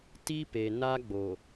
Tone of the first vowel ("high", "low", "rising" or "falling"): high